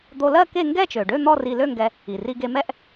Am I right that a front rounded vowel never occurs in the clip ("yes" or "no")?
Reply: no